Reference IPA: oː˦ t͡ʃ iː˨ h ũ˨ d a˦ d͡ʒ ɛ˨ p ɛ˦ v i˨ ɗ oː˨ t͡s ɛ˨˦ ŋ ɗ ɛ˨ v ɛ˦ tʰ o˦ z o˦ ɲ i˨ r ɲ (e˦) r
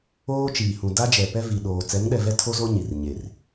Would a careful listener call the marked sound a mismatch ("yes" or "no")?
yes